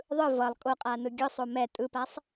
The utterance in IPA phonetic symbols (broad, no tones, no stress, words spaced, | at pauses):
ðˤɯ vʌlˠ kʼoqʼaːnɯ ɡʲɯsˤo mɛ tʼɯpasˤ